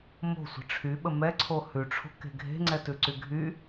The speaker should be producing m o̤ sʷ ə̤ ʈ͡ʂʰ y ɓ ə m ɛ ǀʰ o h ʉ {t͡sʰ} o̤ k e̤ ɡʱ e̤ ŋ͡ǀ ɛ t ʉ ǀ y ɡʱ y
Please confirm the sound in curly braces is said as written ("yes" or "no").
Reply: no